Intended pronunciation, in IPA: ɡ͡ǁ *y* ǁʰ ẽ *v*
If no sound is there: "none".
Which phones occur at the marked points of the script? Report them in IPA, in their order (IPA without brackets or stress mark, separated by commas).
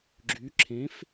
y, f